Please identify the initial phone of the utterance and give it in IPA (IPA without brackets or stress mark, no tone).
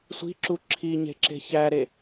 sʷ